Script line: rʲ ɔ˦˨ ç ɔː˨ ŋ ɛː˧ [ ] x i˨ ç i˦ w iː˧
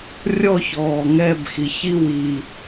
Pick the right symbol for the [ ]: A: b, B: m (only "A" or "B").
A